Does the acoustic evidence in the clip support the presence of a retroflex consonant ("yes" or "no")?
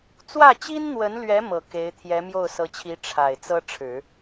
yes